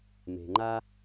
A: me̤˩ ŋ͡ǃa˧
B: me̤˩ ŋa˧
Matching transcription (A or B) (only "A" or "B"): A